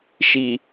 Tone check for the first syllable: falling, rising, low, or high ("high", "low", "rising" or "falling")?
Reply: low